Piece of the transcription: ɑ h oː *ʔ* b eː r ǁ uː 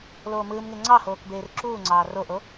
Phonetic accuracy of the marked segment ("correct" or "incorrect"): incorrect